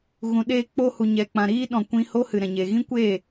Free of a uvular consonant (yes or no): yes